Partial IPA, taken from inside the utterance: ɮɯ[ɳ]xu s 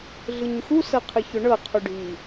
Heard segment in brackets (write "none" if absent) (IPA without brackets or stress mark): ɲ